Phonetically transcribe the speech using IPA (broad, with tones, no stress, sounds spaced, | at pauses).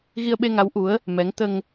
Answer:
ɣ i˧ ə̯ ɓ e˧ ŋ a˧˥ w ʔ u˧˥ ə̯ | m ɛ˧˥ ŋ t̪ ə˧ ŋ